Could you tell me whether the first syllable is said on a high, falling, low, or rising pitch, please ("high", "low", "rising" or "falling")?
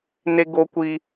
high